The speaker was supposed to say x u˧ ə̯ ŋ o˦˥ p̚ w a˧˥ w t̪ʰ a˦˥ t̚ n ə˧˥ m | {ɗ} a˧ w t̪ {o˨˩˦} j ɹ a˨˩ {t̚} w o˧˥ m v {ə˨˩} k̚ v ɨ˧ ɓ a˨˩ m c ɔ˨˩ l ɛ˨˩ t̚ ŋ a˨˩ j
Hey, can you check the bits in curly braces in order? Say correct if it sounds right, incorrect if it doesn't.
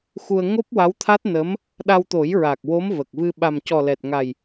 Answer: correct, correct, incorrect, correct

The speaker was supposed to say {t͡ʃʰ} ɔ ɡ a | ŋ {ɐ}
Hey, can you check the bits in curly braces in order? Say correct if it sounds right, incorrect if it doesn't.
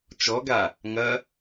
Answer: incorrect, correct

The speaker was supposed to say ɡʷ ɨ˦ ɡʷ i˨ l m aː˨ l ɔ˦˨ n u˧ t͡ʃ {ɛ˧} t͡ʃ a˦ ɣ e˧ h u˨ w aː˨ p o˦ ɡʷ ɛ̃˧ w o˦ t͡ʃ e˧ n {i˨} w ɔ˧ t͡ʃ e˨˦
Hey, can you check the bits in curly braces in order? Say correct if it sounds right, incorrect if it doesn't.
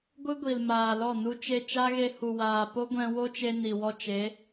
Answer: incorrect, correct

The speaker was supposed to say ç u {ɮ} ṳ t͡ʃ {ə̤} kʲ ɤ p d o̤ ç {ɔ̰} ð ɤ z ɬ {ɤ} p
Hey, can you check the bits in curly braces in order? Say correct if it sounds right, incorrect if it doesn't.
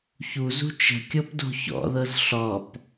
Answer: incorrect, correct, correct, incorrect

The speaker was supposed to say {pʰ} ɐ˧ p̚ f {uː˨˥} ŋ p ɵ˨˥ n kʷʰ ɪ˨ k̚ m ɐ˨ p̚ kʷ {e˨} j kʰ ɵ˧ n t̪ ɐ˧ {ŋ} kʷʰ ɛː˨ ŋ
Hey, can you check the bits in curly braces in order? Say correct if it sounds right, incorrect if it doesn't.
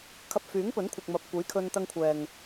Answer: incorrect, incorrect, incorrect, correct

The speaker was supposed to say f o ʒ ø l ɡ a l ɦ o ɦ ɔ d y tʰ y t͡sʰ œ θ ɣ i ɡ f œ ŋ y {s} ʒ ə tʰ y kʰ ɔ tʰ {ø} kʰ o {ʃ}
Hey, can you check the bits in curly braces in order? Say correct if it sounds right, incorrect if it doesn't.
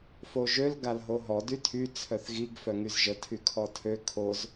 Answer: incorrect, correct, incorrect

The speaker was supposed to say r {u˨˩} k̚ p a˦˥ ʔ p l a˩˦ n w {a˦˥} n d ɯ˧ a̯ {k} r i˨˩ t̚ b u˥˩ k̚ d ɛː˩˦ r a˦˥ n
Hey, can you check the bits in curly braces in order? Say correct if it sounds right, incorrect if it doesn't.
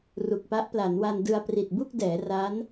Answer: correct, incorrect, incorrect

